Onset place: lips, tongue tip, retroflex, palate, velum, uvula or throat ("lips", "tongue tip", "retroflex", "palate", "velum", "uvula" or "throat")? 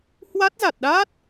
throat